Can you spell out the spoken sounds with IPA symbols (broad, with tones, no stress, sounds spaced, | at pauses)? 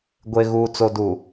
ɡʷ e˨ ɣ uː˨ t͡s o˨ d u˨